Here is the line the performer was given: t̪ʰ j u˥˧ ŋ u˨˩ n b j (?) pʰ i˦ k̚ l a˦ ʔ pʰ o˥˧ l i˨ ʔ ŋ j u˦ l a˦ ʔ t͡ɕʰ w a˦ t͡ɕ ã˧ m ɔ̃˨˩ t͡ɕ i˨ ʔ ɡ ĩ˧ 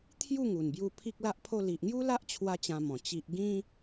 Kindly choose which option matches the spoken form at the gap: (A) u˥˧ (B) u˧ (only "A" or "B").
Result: B